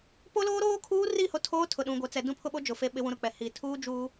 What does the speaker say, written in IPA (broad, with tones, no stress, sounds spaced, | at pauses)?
p o˦ l oː˦ ɾ oː˦ kʰ uː˦ r i˦˨ h o˦ tʰ oː˦ tʰ ʊ˨ ɗ ũ˨ ɡʷ ɛ˨ t͡s ɛ˨ d ũ˦ pʰ ʊ˦ ɓ o˦ d͡ʒ ʊ˨ f e˦ ɓ ɪ˦ w ũ˦ ɾ ʊ˦ k͡p ɛ˨ h iː˨ tʰ uː˦ d͡ʒ uː˦